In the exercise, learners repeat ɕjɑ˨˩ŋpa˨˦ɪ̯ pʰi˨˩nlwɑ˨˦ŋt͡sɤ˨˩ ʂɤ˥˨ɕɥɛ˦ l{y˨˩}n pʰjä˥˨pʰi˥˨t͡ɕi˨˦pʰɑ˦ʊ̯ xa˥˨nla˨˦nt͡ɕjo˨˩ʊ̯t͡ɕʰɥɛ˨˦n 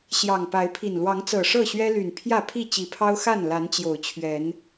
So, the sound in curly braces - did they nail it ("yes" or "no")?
yes